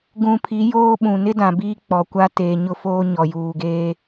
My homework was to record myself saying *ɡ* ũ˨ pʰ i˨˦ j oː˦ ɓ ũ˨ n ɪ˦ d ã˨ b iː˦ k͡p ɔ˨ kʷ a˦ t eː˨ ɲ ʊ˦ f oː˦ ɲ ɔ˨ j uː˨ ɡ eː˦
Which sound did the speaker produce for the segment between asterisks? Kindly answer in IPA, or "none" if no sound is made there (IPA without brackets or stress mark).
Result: ɡ